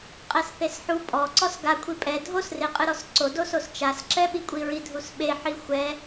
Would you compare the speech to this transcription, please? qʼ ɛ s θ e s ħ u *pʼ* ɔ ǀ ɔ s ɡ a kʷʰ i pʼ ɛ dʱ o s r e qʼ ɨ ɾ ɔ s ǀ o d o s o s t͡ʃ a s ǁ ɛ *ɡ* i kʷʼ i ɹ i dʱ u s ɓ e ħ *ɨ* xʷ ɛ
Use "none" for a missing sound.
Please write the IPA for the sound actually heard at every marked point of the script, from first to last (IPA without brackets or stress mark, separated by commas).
pʼ, ɓ, i